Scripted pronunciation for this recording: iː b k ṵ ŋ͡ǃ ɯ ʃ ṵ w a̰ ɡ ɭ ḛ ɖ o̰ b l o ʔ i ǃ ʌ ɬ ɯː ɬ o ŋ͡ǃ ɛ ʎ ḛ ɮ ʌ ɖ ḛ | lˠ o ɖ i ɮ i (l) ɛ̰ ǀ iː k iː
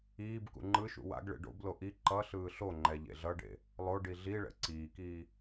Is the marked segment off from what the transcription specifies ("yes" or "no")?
yes